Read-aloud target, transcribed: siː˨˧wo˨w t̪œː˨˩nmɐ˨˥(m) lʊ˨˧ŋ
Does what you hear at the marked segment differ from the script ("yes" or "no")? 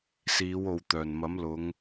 no